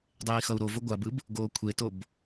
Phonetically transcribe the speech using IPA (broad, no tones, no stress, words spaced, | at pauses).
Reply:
dˤeːi̯xʌu̯ɾovo ɡʷabɯb | ɡoːkʷʰetob